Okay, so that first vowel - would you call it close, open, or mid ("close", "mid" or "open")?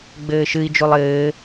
mid